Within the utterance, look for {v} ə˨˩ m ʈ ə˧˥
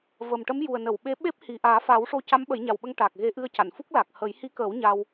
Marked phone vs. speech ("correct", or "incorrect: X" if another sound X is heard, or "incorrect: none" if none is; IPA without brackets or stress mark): correct